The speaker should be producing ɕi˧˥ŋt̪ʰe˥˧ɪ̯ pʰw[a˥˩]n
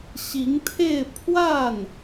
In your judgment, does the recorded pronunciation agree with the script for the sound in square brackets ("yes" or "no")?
yes